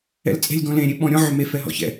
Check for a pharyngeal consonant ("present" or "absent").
present